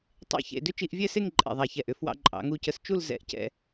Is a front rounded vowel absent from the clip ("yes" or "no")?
no